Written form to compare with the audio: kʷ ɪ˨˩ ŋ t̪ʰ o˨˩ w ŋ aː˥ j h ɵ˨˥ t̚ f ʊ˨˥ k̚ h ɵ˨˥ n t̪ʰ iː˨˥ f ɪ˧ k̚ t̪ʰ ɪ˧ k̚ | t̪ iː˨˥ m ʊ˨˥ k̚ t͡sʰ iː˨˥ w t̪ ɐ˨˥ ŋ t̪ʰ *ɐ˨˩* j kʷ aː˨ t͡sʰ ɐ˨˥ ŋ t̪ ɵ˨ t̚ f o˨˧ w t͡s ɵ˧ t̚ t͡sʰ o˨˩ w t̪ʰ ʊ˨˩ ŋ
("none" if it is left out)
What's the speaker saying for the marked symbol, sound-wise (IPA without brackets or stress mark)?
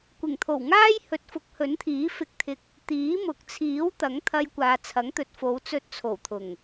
ɐ˧